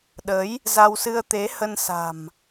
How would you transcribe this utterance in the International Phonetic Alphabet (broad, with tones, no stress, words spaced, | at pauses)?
ɗə˨˦j | za˧wsɨ˧ə̯ t̪e˨˦hə˧nsa̤˨˩m